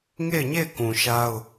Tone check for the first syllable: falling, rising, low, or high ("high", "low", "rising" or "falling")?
falling